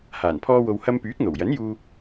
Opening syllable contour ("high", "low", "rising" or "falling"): low